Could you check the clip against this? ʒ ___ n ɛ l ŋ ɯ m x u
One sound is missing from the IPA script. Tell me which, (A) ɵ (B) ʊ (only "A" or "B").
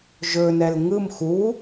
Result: A